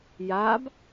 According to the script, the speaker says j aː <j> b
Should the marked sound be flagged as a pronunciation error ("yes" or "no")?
yes